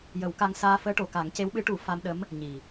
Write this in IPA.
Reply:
j ə˨˩˦ w k a˧ ŋ s aː˧ f əː˧˥ ʈ o˨˩ k a˨˩˦ ŋ c e˧˥ w ɓ ɨ˧˥ ʈ u˨˩˦ f a˧ m ɗ ə˧˥ m | ɲ i˨˩

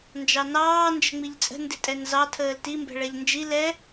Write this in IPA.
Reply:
n d͡ʒ ɑ n ɑː n d͡ʒ ə̤ ŋ͡m i ʎ t͡sʼ ə̤ n d ɪ tʼ ɛ n z ɑ tʰ əː l t i m b ɛ̤ ɭ ɛ ʎ n d͡ʒ i l ɛ

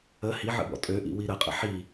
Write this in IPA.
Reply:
ə h i ʕ ə̰ b ɔ̰ tʼ ø ʔ ḭ w i ɾ ə qʼ ə̰ ħ i

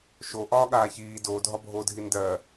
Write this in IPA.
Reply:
ʃ o ʔ ɒː ɠ aː ç iː d oː dʱ ɒ bʱ oː dʱ i n d ɜ

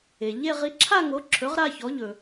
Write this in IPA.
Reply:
e˩ ʎ e˥˧ ʁ i˩˥ ǁʰ a˥˧ ŋ o˩˥ ǁʰ ɵ˩˥ ʁ ɾ a˥˧ ç ɔ˩˥ ʎ ɵ˩

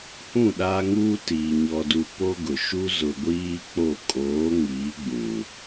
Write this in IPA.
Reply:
h ũ˦˨ ɗ aː˦ ŋ uː˦ t iː˨ ɲ ɔ˦ d u˦ p o˦ ɡ ʊ˨ ʃ u˦ z ʊ˨ ɡʷ iː˦ k͡p o˦˨ kʼ oː˨˦ ŋ iː˨˦ ɡ͡b ũ˨

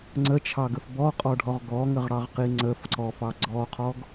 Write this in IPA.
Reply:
ŋ͡ǀ ə t͡ʃʰ ɑ ɡ ə f b ɔ qʼ ɔ ɖʱ ɔ ʁ ɡ ɔ ŋ ə ʁ ɽ ɑ ʁ q i ŋ͡ǀ ə f ǀ ɔ f ɑ ɡ͡ǀ ɔ qʰ ɔ ɡ

